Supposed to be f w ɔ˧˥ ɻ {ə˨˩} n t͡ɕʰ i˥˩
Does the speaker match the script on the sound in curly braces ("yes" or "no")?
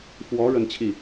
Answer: no